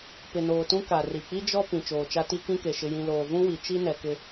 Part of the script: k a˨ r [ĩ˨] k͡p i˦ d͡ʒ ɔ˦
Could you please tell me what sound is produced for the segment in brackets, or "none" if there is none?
i˨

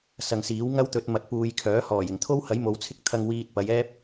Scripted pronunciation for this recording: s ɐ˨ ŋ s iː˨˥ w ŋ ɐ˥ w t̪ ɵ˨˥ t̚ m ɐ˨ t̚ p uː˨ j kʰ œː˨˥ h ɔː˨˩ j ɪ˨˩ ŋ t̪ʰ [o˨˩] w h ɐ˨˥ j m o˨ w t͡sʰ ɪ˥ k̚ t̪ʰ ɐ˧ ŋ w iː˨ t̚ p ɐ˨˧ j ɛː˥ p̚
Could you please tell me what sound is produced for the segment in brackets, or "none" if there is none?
o˥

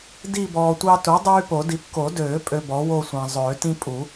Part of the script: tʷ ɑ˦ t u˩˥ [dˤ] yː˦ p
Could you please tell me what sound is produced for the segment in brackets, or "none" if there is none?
dˤ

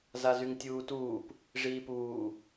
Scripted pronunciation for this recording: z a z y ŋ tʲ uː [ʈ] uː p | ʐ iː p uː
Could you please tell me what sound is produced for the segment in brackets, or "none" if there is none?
t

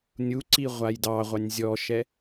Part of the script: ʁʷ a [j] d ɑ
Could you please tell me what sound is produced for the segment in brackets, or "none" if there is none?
j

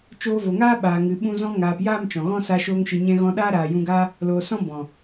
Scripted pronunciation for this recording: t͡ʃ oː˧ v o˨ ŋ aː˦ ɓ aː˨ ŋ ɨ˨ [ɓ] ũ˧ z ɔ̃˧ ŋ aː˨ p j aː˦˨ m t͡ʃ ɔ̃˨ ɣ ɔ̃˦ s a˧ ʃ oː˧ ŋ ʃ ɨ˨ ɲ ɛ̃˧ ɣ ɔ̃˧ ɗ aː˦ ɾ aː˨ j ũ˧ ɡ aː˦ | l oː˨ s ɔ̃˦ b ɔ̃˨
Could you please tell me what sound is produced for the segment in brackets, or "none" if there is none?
ɓ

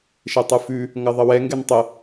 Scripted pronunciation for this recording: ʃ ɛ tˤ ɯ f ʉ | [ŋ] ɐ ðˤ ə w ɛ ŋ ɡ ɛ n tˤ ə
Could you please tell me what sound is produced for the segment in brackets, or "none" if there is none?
ŋ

